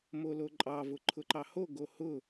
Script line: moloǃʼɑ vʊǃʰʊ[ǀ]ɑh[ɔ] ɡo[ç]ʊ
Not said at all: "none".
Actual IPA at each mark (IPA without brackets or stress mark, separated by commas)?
ǃ, o, h